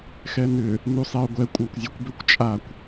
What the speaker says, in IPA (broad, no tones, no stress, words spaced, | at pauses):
xɛnʏ | nusˤeʊ̯ɡʷɛ kʷʼakʷzʲakʷbʏkʷ t͡ʃʼakʷ